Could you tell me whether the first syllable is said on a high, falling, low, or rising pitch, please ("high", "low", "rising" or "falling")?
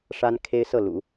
high